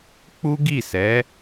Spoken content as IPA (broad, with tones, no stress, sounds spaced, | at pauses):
k͡p u˦ ɡ i˦˨ s ɛ˨˦